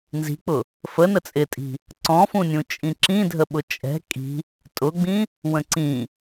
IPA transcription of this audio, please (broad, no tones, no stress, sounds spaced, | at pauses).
n z i̤ k͡p ʊ | f ə n ə t͡sʼ ɪ tʼ i̤ | ǀ ɔ̃ f ũ nʲ ũ t͡ʃʼ ĩ ǁ ĩ dʱ ə ɓ ʊ t͡ʃʼ ɛ̤ kʼ i̤ | tʼ ʊ ɡ͡b ĩ | w ə̃ ǀ ĩ